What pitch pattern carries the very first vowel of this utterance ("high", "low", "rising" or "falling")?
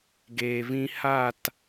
low